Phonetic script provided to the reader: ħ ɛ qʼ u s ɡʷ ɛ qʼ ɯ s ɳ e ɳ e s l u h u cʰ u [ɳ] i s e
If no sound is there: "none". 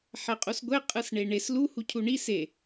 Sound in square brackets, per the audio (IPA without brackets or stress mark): ɳ